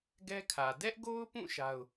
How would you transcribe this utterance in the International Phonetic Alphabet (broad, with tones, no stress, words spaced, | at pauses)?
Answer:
ɡɛ˦kʰä˨ dɛ˦ʔɡo˦ʊ̯pũ˦˨ ʃa˦ʊ̯